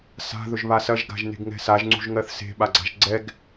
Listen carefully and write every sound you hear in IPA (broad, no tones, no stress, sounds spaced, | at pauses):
s a̤ ð ɵ ʒ β a s ɐ ʒ ɡ a̤ ʒ n e̤ ɡ ŋ ɛ̤ s a ʒ ŋ͡ǀ ṳ ʒ ŋ ɜ θ s e̤ ɓ a ɡ͡ǀ a̤ ʒ ɡ͡ǀ ɛ ɡ